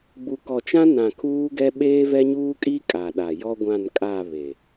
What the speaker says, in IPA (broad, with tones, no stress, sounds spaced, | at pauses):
ɡ͡b u˨ k ɔ˨ t͡ʃ ã˦ n ã˨ kʰ uː˦ ɡ ɛ˦ ɓ eː˦ v ɛ˦ ɲ uː˦ kʼ i˦ kʼ a˨ ɗ a˨ j ɔ˦ ɡʷ ã˦˨ n kʼ a˦˨ β e˨